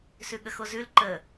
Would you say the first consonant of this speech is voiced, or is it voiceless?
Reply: voiceless